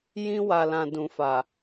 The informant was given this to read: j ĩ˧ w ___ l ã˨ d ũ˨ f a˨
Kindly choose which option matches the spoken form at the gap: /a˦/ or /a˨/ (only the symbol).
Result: a˨